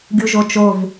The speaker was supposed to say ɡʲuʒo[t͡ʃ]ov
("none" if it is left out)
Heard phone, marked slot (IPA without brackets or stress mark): t͡ʃ